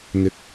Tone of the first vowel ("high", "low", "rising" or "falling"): rising